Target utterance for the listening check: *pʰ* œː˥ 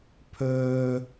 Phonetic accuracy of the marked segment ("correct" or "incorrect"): correct